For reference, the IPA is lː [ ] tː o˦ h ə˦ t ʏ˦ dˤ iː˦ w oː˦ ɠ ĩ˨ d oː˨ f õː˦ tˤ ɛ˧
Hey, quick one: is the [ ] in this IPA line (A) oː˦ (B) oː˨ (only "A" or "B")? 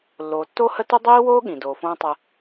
B